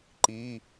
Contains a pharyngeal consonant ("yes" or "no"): no